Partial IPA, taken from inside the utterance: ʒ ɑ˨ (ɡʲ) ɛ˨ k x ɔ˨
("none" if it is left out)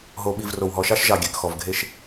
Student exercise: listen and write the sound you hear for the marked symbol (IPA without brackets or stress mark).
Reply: ɡʲ